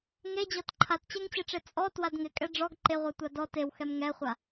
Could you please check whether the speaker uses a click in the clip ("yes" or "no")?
yes